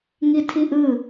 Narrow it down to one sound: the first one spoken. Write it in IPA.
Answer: ŋ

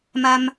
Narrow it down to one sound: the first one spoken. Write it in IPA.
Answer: m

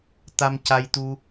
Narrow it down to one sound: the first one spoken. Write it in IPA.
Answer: t̪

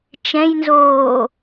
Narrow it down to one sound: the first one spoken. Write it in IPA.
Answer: t͡ʃ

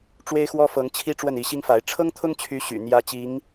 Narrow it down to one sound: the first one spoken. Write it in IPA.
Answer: ʈ͡ʂ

